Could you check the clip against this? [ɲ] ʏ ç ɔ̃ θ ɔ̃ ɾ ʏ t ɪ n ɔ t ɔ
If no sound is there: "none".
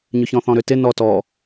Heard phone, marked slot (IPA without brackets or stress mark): ɲ